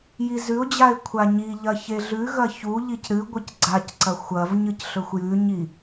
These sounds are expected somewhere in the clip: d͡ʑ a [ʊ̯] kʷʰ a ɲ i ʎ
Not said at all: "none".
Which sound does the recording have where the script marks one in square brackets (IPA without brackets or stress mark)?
ɪ̯